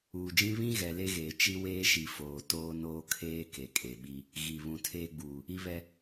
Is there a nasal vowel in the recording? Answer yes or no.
yes